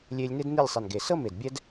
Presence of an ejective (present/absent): absent